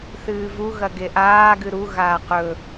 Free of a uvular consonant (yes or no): no